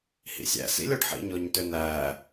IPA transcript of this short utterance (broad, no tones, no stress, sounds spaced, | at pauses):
h ḭ sʲ æ̰ s ḭ lʲ ɔ ɖ ħ ḭ ɲ ɔ ɲ t ø n̪ æ